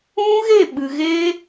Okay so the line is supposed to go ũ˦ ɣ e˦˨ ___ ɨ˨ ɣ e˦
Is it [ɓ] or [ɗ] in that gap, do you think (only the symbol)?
ɓ